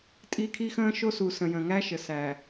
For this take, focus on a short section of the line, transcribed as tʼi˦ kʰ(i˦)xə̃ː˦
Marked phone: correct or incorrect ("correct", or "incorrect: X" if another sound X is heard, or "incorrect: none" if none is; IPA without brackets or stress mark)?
correct